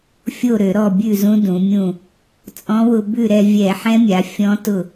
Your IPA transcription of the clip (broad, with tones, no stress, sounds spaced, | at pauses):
fʲ o˥˩ ɾ ø˧˩˧ ɾ ɔ˥˩ bʲ ʉ˥˩ z ũ˧˥ d ũ˩˧ mʲ ũ˥˩ | t͡sʼ ɔ̃˧˥ w ʊ˧ b ʉ˥˩ ɾ ɛ˧ vʲ ɛ˧˩˧ ħ ɛ̃˧˥ mʲ a˩˧ fʲ ɔ̃˧˥ t ʊ˥˩